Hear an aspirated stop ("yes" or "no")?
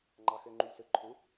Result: yes